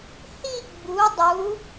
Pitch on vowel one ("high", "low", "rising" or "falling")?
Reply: falling